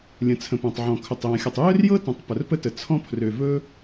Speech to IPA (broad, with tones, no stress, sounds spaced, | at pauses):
lʲ ə̃˩ t͡sʰ ə̃˩ p ã˩ tˤ ʕ ɔ̃˩ kʰ ɵ˩ tˤ j ã˩ xʲ ɵ˩ tˤ j ø˥ r j ɤ˥ t ə̃˩ tˤ p ə˩ r p ə˥ t ə˩ t͡sʰ ɔ̃˥ pʰ r ø˩ v ɵ˥